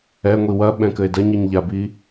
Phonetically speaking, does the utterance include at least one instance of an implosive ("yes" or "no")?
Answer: yes